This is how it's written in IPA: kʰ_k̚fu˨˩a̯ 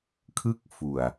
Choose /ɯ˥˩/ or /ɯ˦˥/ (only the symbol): ɯ˥˩